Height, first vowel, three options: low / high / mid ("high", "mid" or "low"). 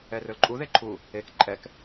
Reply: mid